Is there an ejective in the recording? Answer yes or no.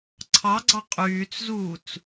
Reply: yes